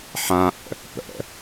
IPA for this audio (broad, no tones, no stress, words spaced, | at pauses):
ħãʔə̰ | pə̰